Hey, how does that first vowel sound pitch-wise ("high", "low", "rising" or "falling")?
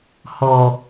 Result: low